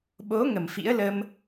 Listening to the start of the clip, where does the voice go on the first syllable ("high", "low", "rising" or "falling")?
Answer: rising